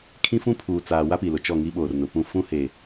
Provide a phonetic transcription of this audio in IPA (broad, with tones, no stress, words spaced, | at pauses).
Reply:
kʰĩ˦fũ˦ pʰuː˨t͡saː˨ wa˦pi˨lʊ˨ t͡ʃɔ˦˨ŋi˦ɓoː˨rnʊ˨ pũ˦˨ fũ˦he˨